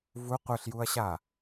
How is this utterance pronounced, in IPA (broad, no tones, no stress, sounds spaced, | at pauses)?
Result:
v u qʷ ɯ ɬ j u ɐ̯ ɕ a